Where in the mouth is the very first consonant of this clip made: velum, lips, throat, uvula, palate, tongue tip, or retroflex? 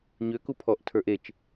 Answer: palate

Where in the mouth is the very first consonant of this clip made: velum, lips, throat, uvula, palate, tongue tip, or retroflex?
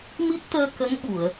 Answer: lips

